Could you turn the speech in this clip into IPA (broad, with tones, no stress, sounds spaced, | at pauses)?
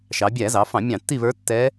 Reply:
ʃ ɑ˩˧ bʲ æ˧˩˧ z ɑ˩˧ f ɑ̃˧˩˧ mʲ ɑ̃˧˩˧ tː i˦˨ β ə˞˧˥ tː ɛ˧˥